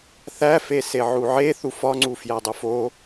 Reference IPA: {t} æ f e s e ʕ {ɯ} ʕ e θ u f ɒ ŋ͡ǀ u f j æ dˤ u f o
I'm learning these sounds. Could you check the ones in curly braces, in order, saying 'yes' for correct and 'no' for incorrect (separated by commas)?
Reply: no, no